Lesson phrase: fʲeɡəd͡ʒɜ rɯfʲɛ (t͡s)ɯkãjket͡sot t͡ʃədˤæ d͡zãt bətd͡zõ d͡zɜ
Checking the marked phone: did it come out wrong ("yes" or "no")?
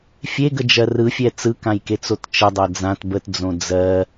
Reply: no